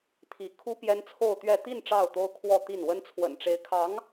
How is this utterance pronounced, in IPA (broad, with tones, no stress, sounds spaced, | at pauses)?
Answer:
t̪ʰ i˧˥ kʰ u˥ p j ɛ˥ n t͡sʰ o˥˧ ʊ̯ t̪ ɥ ɛ˥˧ t̪ i˥˧ n ʈ͡ʂ ɑ˥˩ ʊ̯ t̪ o˥ ʊ̯ kʰ w ɔ˥˧ t̪ i˥˩ n w ə˥ n t͡sʰ w ə̰˨˩ n ʈ͡ʂ e˧˥ ɪ̯ kʰ ɑ˧˥ ŋ